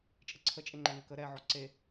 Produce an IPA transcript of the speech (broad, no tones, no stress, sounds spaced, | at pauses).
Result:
t͡ʃʼ ə ǀʰ ə t͡ʃʼ e ŋ͡ǃ ɛ ŋ ə k ə ɾ ɛ ʕ ɔ ǀ e